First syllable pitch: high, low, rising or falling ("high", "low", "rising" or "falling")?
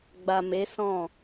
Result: low